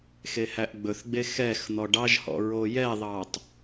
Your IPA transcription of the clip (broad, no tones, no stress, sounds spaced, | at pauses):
x e h æ ʔ ɡ͡b ɵ θ ɡ͡b e x ɛ x n̪ ɔ ɖ ɑ ʒ h ɔ̰ ɹ o j ɛ ðˤ ɑ tˤ